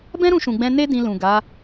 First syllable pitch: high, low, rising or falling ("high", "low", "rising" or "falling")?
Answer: high